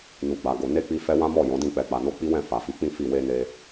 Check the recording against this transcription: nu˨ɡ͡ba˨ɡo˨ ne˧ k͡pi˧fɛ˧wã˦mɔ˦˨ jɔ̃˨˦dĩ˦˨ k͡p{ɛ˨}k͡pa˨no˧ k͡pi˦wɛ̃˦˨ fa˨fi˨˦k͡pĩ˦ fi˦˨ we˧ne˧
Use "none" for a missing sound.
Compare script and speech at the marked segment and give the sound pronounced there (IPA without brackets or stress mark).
ɛ˨